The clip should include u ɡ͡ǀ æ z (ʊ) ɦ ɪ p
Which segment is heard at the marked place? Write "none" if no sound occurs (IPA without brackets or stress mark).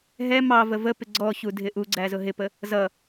ʊ